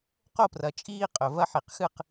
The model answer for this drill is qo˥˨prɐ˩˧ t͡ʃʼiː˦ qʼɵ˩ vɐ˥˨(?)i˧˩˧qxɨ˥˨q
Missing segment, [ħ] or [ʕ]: ħ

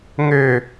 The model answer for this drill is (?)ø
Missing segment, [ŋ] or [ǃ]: ŋ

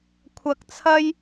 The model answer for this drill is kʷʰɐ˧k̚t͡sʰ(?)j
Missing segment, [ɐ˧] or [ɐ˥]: ɐ˥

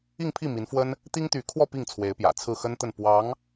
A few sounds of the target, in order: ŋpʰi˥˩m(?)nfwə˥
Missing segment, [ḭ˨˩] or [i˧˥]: i˧˥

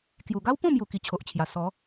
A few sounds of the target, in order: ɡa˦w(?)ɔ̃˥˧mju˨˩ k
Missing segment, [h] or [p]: p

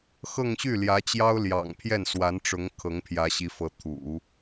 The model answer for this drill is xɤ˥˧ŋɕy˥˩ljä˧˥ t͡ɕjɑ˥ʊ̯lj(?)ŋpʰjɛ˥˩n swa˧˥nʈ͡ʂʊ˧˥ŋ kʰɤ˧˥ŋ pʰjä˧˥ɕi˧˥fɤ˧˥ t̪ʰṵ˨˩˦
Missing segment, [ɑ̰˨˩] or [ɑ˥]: ɑ̰˨˩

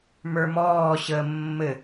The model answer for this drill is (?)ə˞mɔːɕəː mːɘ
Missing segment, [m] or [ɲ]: m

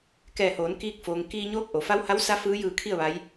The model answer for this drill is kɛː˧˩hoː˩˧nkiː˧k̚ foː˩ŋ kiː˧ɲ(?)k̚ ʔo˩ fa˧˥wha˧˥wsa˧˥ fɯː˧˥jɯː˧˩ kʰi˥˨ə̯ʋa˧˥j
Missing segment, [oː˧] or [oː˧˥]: oː˧˥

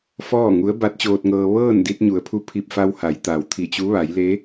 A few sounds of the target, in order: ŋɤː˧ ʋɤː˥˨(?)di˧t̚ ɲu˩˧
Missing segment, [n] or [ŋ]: n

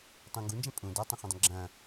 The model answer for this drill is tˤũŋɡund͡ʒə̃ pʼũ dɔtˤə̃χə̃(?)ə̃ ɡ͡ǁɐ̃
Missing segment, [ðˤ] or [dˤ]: dˤ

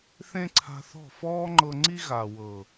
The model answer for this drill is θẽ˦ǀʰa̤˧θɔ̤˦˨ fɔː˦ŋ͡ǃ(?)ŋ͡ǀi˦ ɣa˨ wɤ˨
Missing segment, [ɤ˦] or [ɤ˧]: ɤ˧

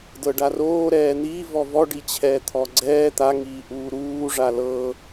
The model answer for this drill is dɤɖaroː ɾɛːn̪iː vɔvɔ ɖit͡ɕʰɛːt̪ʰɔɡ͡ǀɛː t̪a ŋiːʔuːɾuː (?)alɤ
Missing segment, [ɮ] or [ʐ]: ʐ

